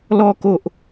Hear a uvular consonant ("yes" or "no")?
no